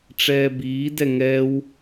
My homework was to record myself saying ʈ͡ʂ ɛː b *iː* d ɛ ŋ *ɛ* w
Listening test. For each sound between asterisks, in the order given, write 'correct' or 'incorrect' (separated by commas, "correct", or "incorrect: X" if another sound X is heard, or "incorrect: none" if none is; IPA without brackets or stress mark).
correct, incorrect: ɛː